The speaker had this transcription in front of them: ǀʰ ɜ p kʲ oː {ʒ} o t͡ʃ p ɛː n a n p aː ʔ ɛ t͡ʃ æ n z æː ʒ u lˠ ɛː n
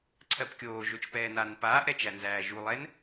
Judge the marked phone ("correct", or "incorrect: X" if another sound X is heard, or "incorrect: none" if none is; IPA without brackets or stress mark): correct